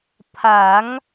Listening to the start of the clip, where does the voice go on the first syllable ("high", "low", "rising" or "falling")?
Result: rising